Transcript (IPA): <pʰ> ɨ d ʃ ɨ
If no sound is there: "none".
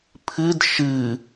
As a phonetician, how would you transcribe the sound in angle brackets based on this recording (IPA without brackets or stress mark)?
pʰ